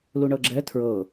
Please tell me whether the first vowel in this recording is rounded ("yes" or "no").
yes